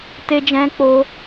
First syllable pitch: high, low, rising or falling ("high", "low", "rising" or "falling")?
high